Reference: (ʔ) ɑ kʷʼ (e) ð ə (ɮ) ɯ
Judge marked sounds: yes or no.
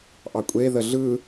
yes, yes, yes

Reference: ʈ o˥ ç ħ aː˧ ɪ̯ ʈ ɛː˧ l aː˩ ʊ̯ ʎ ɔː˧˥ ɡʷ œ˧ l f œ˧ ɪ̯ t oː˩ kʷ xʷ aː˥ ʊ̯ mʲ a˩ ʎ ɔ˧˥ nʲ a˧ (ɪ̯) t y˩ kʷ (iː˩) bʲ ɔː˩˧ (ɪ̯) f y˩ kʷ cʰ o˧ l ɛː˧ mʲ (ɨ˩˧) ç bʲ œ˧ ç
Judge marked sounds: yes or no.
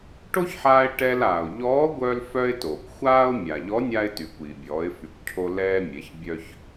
yes, yes, yes, no

